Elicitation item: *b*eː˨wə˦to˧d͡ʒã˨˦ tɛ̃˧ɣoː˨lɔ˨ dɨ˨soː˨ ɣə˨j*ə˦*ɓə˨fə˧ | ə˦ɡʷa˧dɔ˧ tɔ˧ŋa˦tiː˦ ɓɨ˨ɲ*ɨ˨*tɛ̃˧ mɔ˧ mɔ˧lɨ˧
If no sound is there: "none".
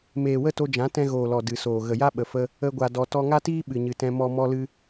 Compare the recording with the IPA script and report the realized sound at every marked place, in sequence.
m, a˦, ɨ˨

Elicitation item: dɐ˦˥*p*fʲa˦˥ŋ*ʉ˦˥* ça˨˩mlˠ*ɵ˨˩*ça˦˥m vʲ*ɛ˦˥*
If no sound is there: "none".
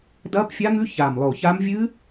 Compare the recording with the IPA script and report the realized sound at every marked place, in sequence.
p, ʉ˦˥, o˨˩, ɨ˦˥

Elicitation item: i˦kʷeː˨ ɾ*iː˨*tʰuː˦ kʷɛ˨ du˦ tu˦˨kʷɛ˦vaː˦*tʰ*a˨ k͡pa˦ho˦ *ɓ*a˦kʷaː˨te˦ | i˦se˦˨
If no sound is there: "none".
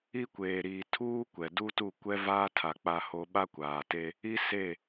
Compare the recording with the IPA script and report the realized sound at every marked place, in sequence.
iː˨, tʰ, ɓ

